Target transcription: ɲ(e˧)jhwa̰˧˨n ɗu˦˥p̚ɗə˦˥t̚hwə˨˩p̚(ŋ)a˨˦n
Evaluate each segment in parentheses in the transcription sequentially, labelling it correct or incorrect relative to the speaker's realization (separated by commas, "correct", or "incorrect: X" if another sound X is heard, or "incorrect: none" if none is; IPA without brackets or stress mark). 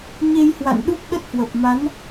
correct, incorrect: m